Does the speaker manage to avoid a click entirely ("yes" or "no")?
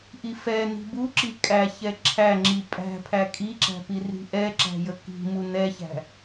no